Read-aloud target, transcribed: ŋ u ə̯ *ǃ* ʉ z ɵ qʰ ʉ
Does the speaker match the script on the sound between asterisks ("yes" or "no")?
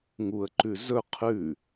yes